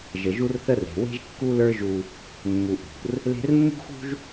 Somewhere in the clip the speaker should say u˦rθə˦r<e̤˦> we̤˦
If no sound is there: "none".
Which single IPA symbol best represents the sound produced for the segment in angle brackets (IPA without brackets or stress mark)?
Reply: e̤˨